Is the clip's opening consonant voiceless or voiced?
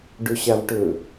voiced